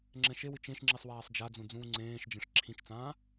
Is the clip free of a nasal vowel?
no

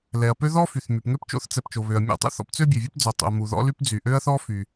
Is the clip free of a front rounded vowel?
no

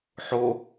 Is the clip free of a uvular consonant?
yes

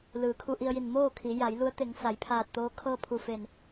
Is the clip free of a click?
yes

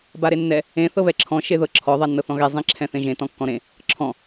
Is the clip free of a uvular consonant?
yes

